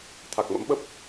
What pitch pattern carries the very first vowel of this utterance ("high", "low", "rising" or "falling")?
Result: low